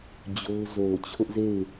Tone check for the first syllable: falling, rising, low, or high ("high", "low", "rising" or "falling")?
high